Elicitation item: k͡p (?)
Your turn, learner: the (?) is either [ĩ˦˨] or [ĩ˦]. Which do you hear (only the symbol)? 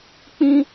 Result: ĩ˦